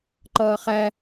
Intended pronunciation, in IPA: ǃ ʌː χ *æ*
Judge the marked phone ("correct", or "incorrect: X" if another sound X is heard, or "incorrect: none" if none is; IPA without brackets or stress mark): correct